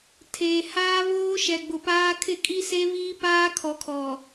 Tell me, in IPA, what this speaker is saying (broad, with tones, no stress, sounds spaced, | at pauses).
tʰ eː˨ h aː˦ β oː˦ ʃ ɛ˨ ɡ͡b ʊ˨ p aː˦ kʰ ɪ˦˨ kʼ i˦ s e˦ β iː˦ p aː˦ kʰ ɔ˨ kʰ ɔ˨